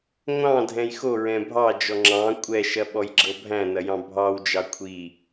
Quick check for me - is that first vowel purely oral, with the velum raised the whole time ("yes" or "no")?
no